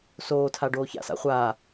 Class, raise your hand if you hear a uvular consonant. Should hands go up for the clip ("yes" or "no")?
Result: yes